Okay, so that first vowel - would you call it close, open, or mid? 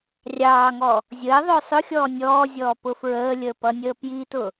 open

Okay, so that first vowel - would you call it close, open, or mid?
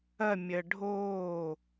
open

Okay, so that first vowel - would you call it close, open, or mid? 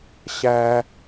open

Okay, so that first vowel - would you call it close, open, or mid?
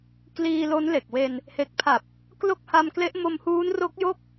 close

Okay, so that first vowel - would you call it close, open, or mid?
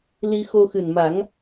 close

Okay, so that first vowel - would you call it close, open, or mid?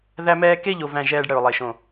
open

